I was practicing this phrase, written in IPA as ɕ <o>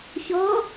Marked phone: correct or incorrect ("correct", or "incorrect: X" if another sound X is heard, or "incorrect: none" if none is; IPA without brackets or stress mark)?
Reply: incorrect: ɔ